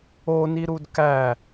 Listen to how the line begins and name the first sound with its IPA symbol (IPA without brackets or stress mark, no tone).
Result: o